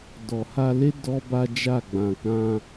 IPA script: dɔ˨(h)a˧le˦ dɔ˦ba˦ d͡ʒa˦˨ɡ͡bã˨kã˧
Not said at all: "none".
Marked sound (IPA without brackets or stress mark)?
h